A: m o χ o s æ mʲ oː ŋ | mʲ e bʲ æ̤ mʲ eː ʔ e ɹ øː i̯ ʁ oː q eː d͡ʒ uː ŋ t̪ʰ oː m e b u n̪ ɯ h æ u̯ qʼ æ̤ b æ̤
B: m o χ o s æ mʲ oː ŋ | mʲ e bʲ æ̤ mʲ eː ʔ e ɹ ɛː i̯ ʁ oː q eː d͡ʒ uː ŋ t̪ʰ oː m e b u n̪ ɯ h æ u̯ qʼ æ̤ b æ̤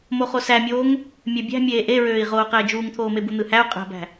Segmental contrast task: A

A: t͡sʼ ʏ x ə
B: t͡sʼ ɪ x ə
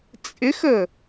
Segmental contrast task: B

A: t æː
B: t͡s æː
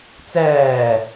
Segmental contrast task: B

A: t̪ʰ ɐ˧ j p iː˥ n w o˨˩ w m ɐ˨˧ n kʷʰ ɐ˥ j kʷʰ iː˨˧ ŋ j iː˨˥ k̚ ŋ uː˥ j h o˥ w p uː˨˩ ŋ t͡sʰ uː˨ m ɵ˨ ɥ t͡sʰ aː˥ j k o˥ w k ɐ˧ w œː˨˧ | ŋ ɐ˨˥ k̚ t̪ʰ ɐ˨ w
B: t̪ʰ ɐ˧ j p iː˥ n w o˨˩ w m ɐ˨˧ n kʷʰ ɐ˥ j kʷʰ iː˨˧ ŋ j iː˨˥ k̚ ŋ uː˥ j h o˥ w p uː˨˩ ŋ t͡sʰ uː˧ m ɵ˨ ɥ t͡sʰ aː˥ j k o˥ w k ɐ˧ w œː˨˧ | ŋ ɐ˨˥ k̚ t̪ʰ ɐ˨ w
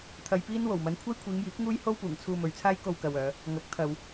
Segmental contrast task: B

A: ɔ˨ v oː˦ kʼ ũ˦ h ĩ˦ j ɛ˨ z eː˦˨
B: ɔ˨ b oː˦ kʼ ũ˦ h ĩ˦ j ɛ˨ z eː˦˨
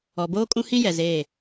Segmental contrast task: B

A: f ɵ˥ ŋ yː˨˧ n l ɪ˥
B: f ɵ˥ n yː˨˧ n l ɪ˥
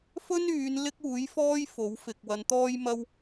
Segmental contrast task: B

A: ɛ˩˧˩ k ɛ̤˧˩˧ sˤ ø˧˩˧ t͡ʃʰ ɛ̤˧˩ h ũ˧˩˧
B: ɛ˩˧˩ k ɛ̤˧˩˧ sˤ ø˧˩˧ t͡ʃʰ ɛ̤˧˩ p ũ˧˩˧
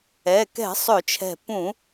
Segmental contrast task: B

